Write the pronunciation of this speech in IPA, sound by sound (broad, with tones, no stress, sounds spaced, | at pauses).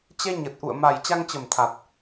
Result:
t͡ɕ ɛ˧ ɲ ə˨˩ t̚ ʔ ṵ˧˨ ə̯ m a˨˩ j t͡ɕ a˧ ŋ t͡ɕ ə˨˩ m t̪ʰ a˨˩ t̚